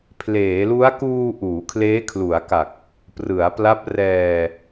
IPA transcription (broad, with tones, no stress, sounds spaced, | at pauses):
pʰ l eː˩˦ l u˦˥ a̯ k uː˧ ʔ uː˩˦ kʰ l eː˦˥ kʰ l u˩˦ a̯ k a˨˩ k̚ | p r ɯ˩˦ a̯ p l a˦˥ p̚ r ɛː˧